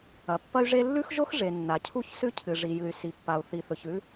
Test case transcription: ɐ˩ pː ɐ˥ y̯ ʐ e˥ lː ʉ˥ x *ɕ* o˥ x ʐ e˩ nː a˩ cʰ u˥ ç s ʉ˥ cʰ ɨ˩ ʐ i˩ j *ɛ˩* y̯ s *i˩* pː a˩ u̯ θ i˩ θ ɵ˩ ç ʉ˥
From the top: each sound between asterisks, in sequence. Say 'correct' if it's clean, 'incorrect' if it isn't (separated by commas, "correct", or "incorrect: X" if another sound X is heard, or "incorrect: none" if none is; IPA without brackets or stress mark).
incorrect: ʒ, incorrect: ɨ˩, correct